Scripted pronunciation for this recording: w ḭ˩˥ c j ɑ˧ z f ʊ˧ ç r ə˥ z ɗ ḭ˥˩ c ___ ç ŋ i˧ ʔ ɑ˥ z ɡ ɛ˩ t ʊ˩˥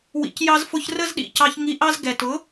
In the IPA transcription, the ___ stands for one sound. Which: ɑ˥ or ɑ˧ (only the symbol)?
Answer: ɑ˧